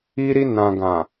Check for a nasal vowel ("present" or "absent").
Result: present